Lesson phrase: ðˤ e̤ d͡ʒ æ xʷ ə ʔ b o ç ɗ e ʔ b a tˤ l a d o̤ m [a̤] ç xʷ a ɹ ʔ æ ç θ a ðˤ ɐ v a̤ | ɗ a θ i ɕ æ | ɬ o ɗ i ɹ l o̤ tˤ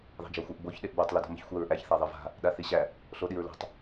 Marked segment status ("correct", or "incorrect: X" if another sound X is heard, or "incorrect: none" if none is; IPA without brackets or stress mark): incorrect: ə̤